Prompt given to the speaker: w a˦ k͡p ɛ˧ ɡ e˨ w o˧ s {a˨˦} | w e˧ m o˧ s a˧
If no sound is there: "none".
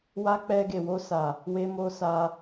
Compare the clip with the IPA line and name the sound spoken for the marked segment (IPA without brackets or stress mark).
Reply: a˨